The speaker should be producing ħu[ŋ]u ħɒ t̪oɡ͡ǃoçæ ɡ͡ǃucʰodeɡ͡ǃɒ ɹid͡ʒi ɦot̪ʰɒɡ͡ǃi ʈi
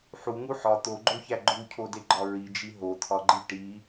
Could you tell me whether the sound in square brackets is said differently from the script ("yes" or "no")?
no